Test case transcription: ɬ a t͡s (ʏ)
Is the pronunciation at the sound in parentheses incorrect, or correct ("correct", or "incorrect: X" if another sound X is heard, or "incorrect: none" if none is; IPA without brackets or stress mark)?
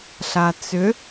correct